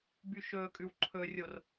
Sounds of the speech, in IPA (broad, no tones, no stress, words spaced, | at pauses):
byʃɵkʼʉw ǃʰɵrʲor